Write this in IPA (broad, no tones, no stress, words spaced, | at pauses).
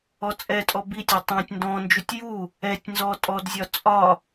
ɔt͡sʼɛtʼɔ bitʲɒ tˤæ̃tʲ ndɔ̃nd͡ʒutʲ ju | ɛtʲ nzɔtʼɔdzʲɒ t͡sʼɒ